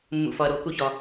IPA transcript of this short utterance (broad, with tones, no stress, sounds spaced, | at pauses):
mː ṵ˧ f ɒ˧ ɐ̯ ɾ o˨˦ k u˦ ç ɒ˧